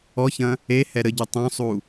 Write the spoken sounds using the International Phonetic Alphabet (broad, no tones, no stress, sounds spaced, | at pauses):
ɔ ç ɐ̃ | e h ɛ ɾ ə ɟ u tˤ õ sˤ u